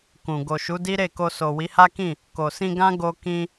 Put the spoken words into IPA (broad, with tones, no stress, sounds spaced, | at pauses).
k ũ˨ ɡ o˨ ʃ u˨˦ d i˦ ɾ e˦˨ k o˧ s o˨ w i˨˦ h a˦ k ĩ˦˨ | k o˨ s ĩ˧ ɡ ã˦ ɡ o˧ k ĩ˧